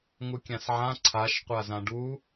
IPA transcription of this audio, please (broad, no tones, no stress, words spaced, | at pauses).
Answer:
ŋukʲãsʕã ǀʰaʃ qʷazãɖu